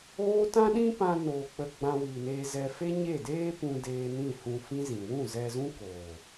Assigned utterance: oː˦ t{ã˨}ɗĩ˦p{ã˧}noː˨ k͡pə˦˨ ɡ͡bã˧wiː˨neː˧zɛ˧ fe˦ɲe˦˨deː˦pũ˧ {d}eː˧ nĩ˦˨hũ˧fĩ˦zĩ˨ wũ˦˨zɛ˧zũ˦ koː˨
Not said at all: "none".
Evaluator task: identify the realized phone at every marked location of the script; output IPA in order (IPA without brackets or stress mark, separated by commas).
ã˦, ã˧, d